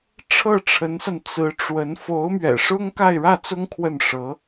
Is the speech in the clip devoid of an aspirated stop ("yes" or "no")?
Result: no